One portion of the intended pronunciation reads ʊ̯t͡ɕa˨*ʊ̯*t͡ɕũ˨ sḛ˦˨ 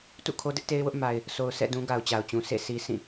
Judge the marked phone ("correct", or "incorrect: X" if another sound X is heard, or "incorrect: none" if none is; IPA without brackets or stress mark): correct